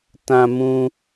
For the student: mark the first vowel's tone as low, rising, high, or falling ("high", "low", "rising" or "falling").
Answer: high